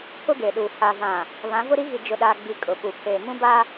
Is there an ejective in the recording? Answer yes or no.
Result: yes